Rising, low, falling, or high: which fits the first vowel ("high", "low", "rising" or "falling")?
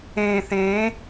low